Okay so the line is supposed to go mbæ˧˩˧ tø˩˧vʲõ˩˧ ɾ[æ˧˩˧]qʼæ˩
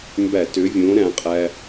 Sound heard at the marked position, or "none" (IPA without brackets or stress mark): æ̃˧˩˧